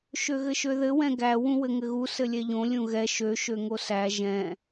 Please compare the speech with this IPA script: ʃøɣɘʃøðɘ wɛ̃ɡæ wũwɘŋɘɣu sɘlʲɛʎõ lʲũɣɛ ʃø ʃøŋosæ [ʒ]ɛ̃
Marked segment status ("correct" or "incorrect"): correct